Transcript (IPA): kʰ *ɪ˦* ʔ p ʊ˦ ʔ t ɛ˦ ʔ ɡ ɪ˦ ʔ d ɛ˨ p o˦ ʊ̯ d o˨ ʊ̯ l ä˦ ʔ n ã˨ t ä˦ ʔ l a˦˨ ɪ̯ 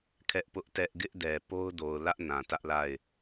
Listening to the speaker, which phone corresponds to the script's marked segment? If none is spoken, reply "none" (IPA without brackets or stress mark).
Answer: ɛ˦